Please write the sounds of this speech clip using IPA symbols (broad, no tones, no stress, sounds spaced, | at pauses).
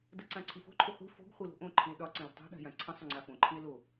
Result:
d ə ǀ ã ǀʰ i f o̤ ǃʰ ʏ χʷ i̤ f o̤ ɡ χʷ i l o̤ ʔ õ ǃʰ ĩ e̯ ɗ ɒ ǀ ə̃ l ə̤ tˤ o̤ ɗ a̤ j ã ǀʰ ə̃ sˤ ʏ ŋ͡ǀ a f õ ǃʰ ĩ e̯ l o